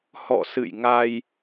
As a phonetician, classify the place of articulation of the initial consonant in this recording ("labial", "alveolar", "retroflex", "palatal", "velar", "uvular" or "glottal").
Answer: glottal